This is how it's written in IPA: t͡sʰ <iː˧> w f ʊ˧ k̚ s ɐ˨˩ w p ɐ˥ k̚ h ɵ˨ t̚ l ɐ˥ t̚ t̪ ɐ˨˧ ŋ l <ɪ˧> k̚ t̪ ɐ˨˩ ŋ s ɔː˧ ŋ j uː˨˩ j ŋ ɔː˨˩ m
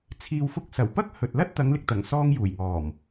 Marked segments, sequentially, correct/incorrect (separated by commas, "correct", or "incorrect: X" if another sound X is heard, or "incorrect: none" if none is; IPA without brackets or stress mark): incorrect: iː˨, incorrect: ɪ˨